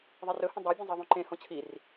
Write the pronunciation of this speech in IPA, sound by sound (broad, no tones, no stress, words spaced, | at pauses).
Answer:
ðˤirɵhə̃ dˤabʲə̃ zˤiðˤũǃẽhõ t͡ɕʰir